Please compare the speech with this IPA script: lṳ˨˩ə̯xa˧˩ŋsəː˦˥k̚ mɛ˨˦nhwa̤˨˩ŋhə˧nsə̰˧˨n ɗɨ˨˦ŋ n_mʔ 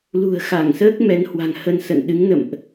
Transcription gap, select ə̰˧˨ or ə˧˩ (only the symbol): ə̰˧˨